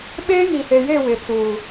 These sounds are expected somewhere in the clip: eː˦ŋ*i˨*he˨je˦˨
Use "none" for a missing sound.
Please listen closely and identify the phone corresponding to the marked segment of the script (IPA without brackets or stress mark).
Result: i˨